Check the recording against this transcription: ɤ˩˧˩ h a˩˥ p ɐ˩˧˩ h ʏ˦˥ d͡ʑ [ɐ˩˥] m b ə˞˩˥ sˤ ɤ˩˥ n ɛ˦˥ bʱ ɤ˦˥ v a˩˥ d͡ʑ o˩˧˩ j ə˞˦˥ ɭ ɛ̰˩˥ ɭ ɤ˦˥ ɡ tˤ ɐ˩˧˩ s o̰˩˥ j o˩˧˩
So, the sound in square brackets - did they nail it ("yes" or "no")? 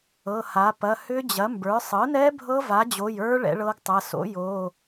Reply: yes